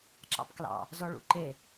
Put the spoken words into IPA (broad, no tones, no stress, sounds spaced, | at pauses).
ǁ ɑ̰ p k l ɑ̰ | z ɔ ɭ ṵ ǃ e